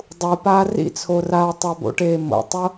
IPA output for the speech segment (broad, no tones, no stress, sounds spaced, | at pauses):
dˤ u p aː r ḭ t͡sʰ o r aː tˤ a b o̰ ʈ eː m o̰ tˤ o